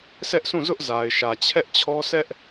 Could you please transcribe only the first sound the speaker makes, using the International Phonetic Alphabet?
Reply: s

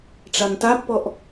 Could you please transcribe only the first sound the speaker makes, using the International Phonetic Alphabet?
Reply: ʈ͡ʂ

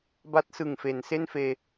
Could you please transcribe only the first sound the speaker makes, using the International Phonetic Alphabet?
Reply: b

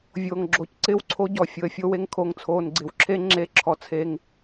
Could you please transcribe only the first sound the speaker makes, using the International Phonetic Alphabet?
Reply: vʲ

